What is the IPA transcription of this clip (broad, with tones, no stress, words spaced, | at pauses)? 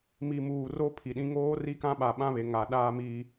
mi˨muː˨ro˦ pʰi˨ɗĩ˦ ŋoː˦ri˦kã˦ɓa˨ ɓã˦βe˨ŋa˨ ɗaː˦mi˦